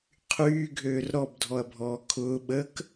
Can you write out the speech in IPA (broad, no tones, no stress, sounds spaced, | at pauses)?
qʰ yː ɡʱ øː r ɾ ɔ b dʱ ɔ ɐ̯ bʱ ɔː kʰ ʊː ɓ ə k